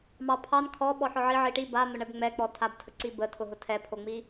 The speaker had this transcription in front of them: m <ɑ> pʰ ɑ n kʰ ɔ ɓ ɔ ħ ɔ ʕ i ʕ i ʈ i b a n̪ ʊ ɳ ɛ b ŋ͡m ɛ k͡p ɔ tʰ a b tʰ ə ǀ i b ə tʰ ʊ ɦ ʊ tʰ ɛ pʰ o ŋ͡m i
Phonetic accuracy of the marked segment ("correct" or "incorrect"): correct